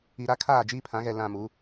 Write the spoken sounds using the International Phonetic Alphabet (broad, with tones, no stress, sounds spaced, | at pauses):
i˨ ɾ a˦ kʰ aː˦˨ d͡ʒ iː˦ pʰ ã˨˦ ɣ ɛ˨ l ã˨ m u˨˦